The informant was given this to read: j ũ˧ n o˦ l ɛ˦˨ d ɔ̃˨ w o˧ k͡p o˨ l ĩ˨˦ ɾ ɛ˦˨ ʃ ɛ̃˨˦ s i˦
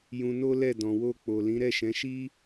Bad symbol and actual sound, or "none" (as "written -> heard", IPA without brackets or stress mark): s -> ʃ